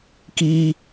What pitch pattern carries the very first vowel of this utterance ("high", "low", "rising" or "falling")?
high